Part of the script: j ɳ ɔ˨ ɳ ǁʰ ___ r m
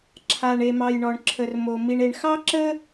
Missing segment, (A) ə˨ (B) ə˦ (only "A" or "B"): A